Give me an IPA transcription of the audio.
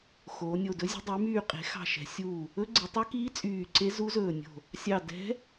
x oː˩˧ nʲ o˧˩ d ɵ˧˥ zʲ e̤˧˥ dˤ y˩˧ m yː˧˩ qʼ e̤˩˧ x ɑ̤˧˩ ʃ ɛ̤˩˧ sʲ u˧˩ | ɵ˧˥ ɡ͡ǀ i˩˧ tˤ ø˧˥ k iː˧˥ t͡sʼ yː˧˩ ǀ e˧˥ z u˧˥ z ɵː˧˩ nʲ o̤˧˩ | sʲ ɑ˧˩ d ɛ̤˧˥

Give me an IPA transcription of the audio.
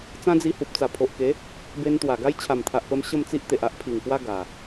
t͡s ã˦ d͡z i˧ h u˨ p̚ t͡s a˨˩ pʰ o˨ ʔ k e˨˦ | b e˧ n t̪ w a˨˩ ɡ a˦ j t͡ɕʰ a˨˩ m t̪ʰ a˨ ʔ p ə˧ m ɕ ə˥˧ m t͡s i˦ ʔ t̪ e˨ ʔ a˦ ʔ pʰ i˨˩ ŋ k w a˦ ɡ a˨˩

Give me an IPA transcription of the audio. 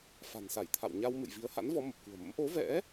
f a̤˨˩ n s a˧˩ j t̪ʰ a̰˧˨ w ɲ a˧ w m ɨ̰˧˨ j v i˨˦ ə̯ h a̰˧˥ n v ɔ˨˦ m ə˨˩ p̚ k ṳ˨˩ ə̯ m ə̰˧˥ m ʔ o˨˦ v ɛ̰˧˥

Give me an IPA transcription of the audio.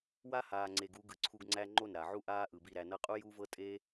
w a˦ h aː˨ ŋ͡ǀ e˨ ɡ u˧ ɡ ɯ˨ ǀʰ u˧ ɡ ŋ͡ǀ æ˦ ŋ͡ǃ o˦˨ n ɾ a˨ ʕ u˦ ʔ aː˦ ʔ ɯ˨ b i˦˨ ɾ æ˧ n ɤ˧ qʼ u˦ j u˦ v ɤ˦ tʼ e˦

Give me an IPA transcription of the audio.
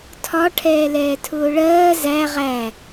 tʰ ɒ ʈʰ ɛː l ɛː tʰ ʊː ɭ ɜː z æ ʁ æ

